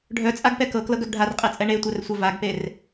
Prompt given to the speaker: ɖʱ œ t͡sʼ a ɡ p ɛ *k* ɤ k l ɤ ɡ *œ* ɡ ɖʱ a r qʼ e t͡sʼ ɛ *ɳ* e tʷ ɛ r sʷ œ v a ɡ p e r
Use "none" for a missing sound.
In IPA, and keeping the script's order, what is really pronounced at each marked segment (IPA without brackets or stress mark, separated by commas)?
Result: k, œ, ɳ